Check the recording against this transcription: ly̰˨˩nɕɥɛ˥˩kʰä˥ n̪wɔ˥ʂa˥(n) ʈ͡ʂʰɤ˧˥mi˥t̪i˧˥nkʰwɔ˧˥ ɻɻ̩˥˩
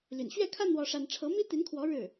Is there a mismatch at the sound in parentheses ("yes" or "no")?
no